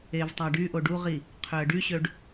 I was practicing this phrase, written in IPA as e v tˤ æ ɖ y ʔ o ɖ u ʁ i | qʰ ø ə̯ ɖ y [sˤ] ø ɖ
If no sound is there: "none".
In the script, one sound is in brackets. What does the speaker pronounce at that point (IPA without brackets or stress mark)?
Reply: ɕ